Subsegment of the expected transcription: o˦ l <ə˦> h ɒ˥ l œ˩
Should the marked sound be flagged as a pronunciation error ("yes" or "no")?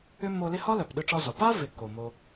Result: yes